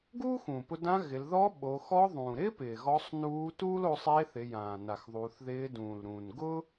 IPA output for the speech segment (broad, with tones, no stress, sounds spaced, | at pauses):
ɡ uː˥ x ũː˩ p ʊ˧ d ã˧˥ ɣ ɪ˩˧ l ð ɔ˧˥ ɓ o˩˧ x ɔ˧˥ ðˤ ũː˩ ɾ ɪː˥ p ɪː˩ ɣ ɔ˧˥ sˤ n uː˧˥ t uː˥ l o˧ sˤ eː˧˥ θ ɪ˩˧ j ãː˩ n a˩ x ðˤ u˩˧ θ ð ɪː˧˥ d ũː˩ l ɾ ũː˩ n ɡ ʊ˥